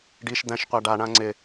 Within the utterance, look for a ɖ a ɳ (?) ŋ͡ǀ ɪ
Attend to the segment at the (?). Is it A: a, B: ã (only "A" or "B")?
B